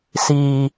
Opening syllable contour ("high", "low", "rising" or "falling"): low